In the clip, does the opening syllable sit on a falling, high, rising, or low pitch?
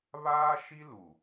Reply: high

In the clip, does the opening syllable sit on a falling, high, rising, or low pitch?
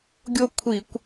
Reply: falling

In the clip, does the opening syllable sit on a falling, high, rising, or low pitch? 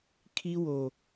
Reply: high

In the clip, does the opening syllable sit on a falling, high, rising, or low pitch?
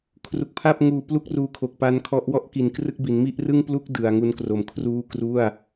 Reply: low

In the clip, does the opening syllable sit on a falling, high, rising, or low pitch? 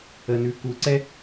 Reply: low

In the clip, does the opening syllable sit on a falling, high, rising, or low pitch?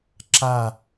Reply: falling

